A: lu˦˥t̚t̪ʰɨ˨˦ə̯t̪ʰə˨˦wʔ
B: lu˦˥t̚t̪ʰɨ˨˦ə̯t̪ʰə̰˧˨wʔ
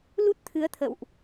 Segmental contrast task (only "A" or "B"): B